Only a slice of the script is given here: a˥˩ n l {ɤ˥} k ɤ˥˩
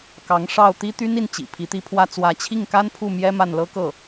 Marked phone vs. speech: correct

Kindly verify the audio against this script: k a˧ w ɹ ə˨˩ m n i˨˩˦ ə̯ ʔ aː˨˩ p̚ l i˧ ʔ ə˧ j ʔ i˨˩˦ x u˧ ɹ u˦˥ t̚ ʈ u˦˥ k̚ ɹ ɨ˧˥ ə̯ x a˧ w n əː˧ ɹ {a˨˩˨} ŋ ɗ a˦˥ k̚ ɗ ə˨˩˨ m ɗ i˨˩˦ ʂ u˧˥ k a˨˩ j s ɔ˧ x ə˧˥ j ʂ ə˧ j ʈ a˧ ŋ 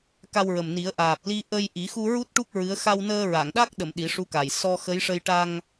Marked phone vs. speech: correct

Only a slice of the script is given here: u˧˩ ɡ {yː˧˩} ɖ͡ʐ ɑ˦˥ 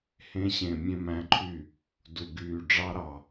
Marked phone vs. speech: correct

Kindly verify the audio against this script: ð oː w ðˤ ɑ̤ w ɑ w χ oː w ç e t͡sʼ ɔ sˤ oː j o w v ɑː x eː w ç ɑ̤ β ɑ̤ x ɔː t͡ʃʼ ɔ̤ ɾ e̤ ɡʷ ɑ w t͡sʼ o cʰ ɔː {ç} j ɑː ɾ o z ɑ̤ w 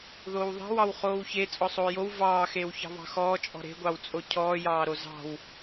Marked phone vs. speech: incorrect: none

